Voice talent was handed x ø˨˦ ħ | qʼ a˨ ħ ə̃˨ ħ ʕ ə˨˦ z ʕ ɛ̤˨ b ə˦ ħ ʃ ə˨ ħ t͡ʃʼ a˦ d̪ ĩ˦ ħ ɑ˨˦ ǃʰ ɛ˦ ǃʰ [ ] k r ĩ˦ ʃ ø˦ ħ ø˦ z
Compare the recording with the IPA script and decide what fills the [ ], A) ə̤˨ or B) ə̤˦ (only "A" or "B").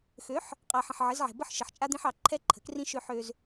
A